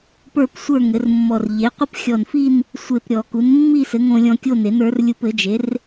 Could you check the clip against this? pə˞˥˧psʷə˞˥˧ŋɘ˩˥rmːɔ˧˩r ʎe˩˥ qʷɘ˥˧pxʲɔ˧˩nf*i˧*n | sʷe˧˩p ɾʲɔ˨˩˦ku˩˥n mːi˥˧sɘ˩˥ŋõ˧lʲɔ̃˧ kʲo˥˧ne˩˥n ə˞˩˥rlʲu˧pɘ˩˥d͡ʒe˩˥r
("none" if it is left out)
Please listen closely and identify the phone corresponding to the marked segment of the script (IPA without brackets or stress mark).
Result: i˥˧